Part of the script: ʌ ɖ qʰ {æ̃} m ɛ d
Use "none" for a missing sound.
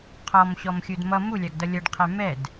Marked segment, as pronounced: æ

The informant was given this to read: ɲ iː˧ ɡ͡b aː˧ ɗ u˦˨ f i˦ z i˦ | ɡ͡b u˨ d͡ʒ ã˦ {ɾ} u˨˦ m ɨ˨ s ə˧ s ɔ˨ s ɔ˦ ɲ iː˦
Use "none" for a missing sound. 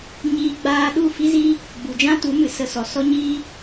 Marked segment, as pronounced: t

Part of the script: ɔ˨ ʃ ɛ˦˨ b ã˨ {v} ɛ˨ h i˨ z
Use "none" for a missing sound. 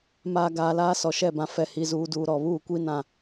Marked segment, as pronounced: f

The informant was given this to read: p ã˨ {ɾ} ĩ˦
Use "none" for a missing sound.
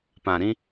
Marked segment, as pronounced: ɾ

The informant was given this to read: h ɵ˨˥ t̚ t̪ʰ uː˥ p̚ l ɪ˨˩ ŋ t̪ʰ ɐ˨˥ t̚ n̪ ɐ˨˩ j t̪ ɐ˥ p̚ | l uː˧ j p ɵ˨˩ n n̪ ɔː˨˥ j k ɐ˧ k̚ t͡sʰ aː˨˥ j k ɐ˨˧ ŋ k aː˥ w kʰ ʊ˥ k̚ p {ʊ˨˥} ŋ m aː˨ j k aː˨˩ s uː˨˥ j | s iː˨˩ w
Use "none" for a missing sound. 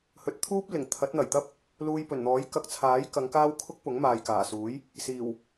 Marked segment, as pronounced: ʊ˨˥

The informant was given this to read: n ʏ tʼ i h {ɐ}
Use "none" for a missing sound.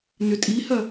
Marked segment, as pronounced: ɐ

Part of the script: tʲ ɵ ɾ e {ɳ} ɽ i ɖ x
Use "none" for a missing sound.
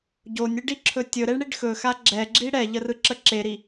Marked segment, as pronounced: ɳ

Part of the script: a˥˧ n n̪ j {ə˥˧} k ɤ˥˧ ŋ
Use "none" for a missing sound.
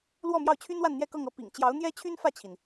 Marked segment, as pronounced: ɛ˥˧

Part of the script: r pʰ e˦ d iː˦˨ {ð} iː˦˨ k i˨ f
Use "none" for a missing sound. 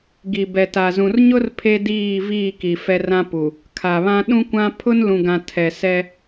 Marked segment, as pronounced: v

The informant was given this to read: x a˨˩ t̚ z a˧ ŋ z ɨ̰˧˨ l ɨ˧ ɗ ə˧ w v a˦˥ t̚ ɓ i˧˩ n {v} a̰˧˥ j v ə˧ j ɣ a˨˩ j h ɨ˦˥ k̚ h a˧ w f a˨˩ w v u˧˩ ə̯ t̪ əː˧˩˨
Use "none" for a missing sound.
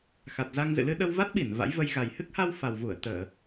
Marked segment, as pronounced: v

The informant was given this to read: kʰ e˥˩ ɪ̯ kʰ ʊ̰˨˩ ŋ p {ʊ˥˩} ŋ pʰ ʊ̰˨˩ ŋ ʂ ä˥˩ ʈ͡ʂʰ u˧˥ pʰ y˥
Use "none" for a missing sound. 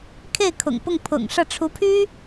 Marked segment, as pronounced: ʊ˥˩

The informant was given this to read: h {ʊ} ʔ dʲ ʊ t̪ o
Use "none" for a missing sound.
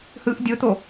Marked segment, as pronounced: ɯ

